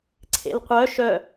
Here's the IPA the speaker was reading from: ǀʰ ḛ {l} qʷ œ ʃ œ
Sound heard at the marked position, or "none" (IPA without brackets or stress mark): l